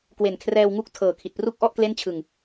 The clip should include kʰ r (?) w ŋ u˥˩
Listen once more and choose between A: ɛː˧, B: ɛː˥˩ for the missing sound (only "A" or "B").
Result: A